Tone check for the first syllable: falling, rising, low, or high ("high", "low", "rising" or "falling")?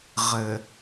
low